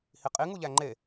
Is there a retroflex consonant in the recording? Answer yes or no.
no